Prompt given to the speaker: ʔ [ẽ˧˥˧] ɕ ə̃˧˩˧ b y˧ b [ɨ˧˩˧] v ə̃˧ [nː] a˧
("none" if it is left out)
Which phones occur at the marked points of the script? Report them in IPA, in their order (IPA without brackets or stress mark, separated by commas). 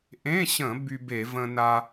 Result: ẽ˧˥˧, e˧˩˧, n